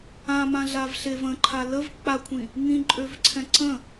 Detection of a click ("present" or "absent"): present